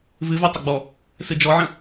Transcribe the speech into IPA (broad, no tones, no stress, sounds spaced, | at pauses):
v ɨ v ɛ tˤ ɐ ɡ͡b ɔ | s ɨ d͡ʒ ɔ ʕ ə̃